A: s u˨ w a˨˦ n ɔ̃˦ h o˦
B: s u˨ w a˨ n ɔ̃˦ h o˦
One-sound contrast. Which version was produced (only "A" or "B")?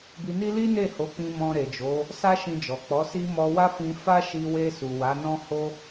A